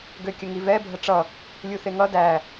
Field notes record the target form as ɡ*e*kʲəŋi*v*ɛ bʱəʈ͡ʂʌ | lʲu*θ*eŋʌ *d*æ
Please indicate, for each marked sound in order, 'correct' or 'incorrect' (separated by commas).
incorrect, correct, correct, correct